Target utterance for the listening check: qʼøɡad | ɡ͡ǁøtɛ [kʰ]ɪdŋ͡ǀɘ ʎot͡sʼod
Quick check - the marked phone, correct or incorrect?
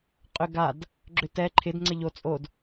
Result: incorrect